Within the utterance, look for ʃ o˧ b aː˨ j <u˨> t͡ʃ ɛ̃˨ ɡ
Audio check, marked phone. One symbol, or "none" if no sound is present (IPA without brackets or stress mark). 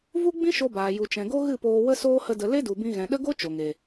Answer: u˨